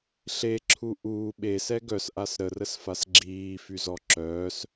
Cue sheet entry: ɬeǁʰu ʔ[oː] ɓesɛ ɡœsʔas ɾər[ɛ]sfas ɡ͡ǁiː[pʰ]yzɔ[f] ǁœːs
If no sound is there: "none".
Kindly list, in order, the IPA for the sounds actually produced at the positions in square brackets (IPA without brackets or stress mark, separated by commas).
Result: uː, ə, f, none